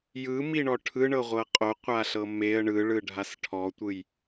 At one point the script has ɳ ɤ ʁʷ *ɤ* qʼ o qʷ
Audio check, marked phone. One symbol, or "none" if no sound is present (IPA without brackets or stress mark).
ɤ